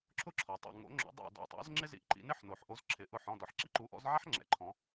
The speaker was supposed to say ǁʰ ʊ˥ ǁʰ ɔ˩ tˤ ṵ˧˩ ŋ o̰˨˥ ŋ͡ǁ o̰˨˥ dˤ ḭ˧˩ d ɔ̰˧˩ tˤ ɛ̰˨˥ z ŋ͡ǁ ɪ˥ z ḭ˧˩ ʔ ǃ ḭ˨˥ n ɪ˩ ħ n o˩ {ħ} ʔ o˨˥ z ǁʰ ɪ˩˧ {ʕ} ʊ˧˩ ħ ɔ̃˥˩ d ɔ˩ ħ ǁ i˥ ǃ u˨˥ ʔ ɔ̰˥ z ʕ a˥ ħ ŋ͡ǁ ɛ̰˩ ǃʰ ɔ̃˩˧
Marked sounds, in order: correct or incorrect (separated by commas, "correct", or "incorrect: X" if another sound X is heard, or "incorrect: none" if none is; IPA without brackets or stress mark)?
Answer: correct, incorrect: ʔ